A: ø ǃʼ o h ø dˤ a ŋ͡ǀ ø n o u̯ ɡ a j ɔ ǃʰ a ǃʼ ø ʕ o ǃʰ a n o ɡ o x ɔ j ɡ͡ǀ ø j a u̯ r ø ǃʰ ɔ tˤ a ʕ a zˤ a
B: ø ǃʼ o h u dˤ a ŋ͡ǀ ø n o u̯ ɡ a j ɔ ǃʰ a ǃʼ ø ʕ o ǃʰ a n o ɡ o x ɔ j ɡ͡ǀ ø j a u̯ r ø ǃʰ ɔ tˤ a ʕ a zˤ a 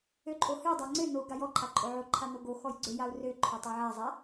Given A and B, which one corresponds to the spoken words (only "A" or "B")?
A